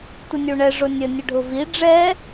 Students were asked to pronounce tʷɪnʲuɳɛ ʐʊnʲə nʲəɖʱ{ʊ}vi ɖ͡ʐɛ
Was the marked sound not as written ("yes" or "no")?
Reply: no